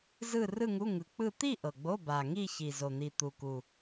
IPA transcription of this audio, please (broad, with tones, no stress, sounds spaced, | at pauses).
z ɯ˥˧ r ɯ˥˧ ŋ u˧˥˧ ŋ ɯ˨˩ k͡p ɯ˥˧ t̪ i˥˧ ʔ ɤ˨˩ ɡ͡b o˧˥˧ b a˨˩ ŋ i˥˧ ç i˨˩ z o˨˩ n̪ i˨˩ t̪ u˨˩ k u˨˩